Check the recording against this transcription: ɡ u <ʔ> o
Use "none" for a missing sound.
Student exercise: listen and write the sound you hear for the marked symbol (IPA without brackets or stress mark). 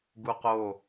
q